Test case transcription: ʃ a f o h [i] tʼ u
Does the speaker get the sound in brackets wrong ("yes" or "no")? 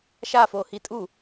no